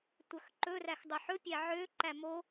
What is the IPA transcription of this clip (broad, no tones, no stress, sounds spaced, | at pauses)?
tʷ œ x ǃ ɵ r æ x dˤ œ ħ ɵ pʲ æ ʕ ø ǃ æ m o